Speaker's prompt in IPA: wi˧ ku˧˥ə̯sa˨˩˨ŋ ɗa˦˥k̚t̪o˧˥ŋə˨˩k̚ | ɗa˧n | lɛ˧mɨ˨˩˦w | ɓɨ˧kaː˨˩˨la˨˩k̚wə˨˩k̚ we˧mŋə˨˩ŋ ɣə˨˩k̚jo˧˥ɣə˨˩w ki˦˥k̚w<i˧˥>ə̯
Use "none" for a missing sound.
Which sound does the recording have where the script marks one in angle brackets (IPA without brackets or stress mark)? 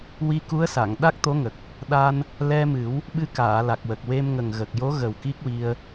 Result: i˧